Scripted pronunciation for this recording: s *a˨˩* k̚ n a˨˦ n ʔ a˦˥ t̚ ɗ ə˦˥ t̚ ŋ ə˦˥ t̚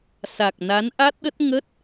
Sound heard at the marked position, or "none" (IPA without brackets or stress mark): a˨˩